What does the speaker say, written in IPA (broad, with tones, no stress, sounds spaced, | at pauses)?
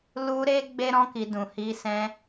l u˧ ɾ e˧ ɡ͡b e˦ ɾ ɔ̃˦ k i˧ d ũ˨ h i˧ s ɛ̃˧